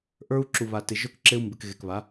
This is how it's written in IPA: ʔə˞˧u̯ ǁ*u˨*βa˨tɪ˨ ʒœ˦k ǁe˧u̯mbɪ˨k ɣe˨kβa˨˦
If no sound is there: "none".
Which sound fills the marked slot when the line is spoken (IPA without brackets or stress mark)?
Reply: u˨